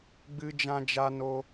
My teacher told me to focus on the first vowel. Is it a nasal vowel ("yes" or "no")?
no